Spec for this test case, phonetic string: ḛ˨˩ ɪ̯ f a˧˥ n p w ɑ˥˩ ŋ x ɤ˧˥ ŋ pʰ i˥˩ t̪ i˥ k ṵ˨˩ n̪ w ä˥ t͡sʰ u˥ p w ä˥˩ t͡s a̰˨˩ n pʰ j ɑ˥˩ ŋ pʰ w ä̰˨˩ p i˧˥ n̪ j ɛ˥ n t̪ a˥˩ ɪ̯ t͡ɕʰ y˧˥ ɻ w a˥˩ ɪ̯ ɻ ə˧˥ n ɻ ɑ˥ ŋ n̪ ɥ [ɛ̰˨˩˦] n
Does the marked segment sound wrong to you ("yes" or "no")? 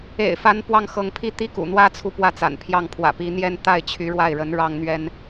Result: yes